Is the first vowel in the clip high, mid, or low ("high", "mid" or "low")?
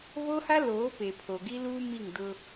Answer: mid